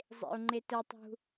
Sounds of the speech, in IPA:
zˤḛu̯ŋ͡ǃetətˤṳ

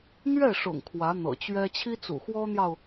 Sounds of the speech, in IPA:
n̪ɥɛ˥˩ʂʊ̰˨˩ŋ kʰwä˧˥n̪ɤ̰˨˩t͡ɕɥɛ˥ t͡ɕʰi˥t͡sṵ˨˩xwɔ˥n̪jɑ˨ʊ̯

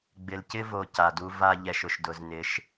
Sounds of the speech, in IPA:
ɡ͡bɪ˨lcɪ˦vo˨ ca˨du˦ va˦ ʎɛ˨ʃʊ˨ʃ dʊ˨znɪ˨˦ʃ

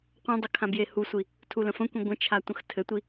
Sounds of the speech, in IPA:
qʷœ̃dˤɘ kʰãbjehusʷi | tʰulə̃fə̃kʷĩ ɡʷə̃t͡ʃʰa tʷə̃xtʰɘtʷi

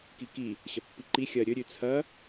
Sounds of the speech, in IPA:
kiki | ɕɐpːiǃi xʲɐ ɾʲɵɾʲʉ t͡sʰɐ

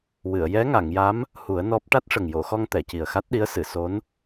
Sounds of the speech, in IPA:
wɨ˨˩˨ə̯ jɛ˧˥ŋa˨˩˨ŋja˧˥m | hu˨˩˦ə̯nɔ˦˥p̚ ʈa˦˥t̚ʂə˨˩ŋjo˨˩˨xɔ˧ŋ t̪ɛ˨˩˨ci˨˩ə̯xa˦˥t̚ɗi˧˥ə̯ sɨ˨˩˨so˧˥n

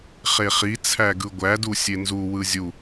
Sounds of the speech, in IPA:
χeχit͡sʰæ ɡɯɡʷædu sʲenzuwɯ zʲu

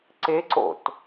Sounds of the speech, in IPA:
ǀeǀo̰t

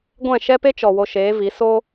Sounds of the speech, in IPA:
ɡʷɛ̃˦˨ ʃɛ˦pe˦t͡ʃɔ˨ wo˧ʃeː˨˦vi˨˦ so˦

